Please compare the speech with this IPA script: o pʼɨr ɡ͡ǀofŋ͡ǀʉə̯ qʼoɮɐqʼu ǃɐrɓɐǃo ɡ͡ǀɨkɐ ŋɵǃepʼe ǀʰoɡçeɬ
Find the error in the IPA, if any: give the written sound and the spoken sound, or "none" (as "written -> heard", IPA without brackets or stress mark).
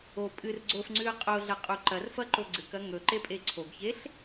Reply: ɓ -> f